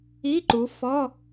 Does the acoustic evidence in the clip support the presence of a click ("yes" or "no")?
yes